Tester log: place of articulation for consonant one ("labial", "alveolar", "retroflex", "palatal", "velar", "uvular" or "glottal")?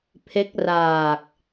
labial